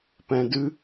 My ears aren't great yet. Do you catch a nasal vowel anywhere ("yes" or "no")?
yes